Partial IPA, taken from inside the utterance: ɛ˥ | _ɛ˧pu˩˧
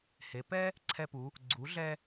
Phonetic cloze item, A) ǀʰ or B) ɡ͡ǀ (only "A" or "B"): A